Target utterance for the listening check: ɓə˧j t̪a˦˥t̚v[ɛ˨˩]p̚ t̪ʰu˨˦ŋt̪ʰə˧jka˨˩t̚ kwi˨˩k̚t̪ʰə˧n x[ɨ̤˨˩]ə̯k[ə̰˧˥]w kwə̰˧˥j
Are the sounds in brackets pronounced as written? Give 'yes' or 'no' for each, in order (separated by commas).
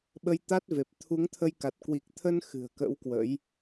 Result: no, yes, yes